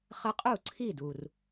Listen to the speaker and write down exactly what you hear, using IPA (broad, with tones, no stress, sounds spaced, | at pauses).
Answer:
χ ə˥˧ qʼ u˥˩ ǀʰ i˥˩ d u˩ r